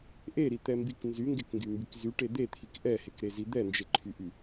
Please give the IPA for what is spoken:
ʔeɾit̪ɛmbik nzyŋɡekŋɡymbyk zyʈe d̪et̪ʰik ʔɛhekɾezi d̪ɛnd͡ʒeǃʰyʔy

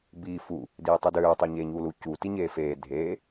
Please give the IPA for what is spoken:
biːfu | diːtˤudøː tˤøɲeːɲuːlu cu tiɲeːfeː dʱeː

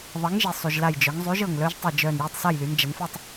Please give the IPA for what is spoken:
ðˤɐ˨˥ŋʒi˩sˤy˩ʒ la˧˩jd͡ʒœ˩˧ŋzˤy˨˥ʒ ɤ˧˩ŋlœ˦˥ʒ tˤi˧˩ d͡ʒœ˧˩n jœ˥˨tˤsa˥˨jly˩˧n d͡ʒɐ˩˧nfɛ˥˨tˤ

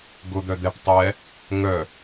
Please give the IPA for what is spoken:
ɡʊ d̪œd̪ɛp tˤɛ | ŋœ

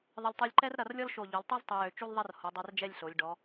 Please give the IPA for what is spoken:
ðˤə˧lʲ tˤy˧lʲǃɛ˥r ɾɐ˧rlʲɔ˥lʃo˧˩ ʎo˩˧lʲtˤy˥ztˤy˩˧jø˩˧ t͡ʃu˥lðˤɐ˥r ho˩˧ dˤɛ˧rd͡ʒɛ˥˧lʲɬo˩˧lʲ ɖɔ˩˧

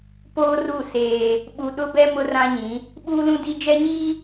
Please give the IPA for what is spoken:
poː˦ru˦˨ seː˦ | ɓu˨ɗʊ˦bɛ˦ mʊ˦rã˦ ɲĩ˨˦ | ɓuː˦lũ˦ di˦ d͡ʒɛ˦ɲiː˦

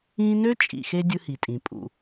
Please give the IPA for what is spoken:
ĩː˦ nø˦ t͡ʃʼḭ˨xe˦ dʲɯ˦hi˨tʼĩ˨ pʼṵ˨

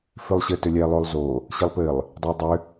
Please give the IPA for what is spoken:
fʏlˠɕɘ tʏlʲɛ lˠolˠzo | ɕɪlˠpɘlˠ | dˤedˤʏ

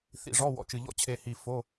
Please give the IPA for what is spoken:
θḭ˨˩ʐɔ˧˥˧ wɔ̰˨˩t͡ʃɨ˨˩ʎɔ̰˦˥ t͡ɕʰe˨˩hi˨˩ fo˧˥˧

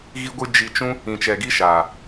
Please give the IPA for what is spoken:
ɣi˦ɡʷɨ˦ d͡ʒi˧t͡ʃũ˦ | ĩ˨t͡ʃɛ˨ɡi˦ʃaː˨

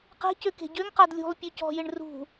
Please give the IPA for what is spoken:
qe̤cø ke̤ɟøŋqad lʲṳlˠ pʲøcɔ̤jɪɳ rṳ

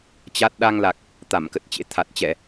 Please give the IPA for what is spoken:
t͡ɕa˦˥t̚ ɗa˧ŋla˨˩k̚ | t̪a˧˩mkə˨˩t̚t͡ɕḛ˧˥ t̪ʰa˨˩t̚t͡ɕɛ˧˩˨

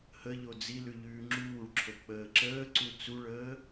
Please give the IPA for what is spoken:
həʎo d͡zilʉ ʎʉːŋ͡ǁuːɭǁʰo k͡pəːǁəːǀu t͡suɭəː

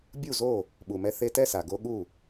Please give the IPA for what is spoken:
bʲu˥˩zo˥˩ | ɓu˩mɛ˧ θe˧tɛ˥˧sa˩ ɡo˧ ɠu˥˩

